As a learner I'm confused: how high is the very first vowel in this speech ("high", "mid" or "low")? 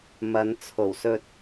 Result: low